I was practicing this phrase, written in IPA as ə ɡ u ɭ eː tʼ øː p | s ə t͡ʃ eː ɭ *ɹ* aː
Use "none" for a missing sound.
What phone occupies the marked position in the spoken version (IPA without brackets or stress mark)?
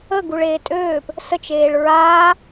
ɹ